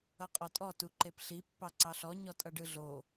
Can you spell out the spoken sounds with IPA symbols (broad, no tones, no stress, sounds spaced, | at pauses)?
ʌ qʼ ɔ tʼ ɔ t u ǃ e p ɬ i pː ɑ ǀ ɑ ɬ ɔ ɲ ɔ tʼ ʌ ɖ ɯ ɮ o